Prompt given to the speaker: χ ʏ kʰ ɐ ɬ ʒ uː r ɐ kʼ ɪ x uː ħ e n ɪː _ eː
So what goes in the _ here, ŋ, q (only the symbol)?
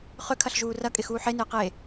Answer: q